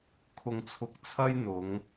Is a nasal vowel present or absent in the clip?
absent